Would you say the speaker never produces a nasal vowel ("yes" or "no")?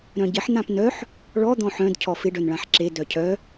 no